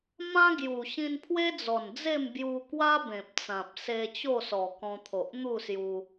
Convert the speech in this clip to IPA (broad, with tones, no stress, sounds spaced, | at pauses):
m ã˦ ɡ j u˨˩ ɕ ĩ˧ n pʰ w e˦ d͡z ɔ˨˩ n d͡z e˥˧ m b j u˧ k w a˦ b ẽ˨ p̚ t͡s ã˨ p̚ s e˧ t͡ɕ o˥˧ s ɔ˨˩ k ɔ̃˧ t̪ʰ o˨ ʔ n̪ u˥˧ s j u˧